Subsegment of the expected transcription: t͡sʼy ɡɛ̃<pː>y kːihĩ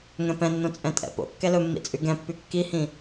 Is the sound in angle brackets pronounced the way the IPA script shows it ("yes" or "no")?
yes